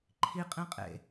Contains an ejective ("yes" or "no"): yes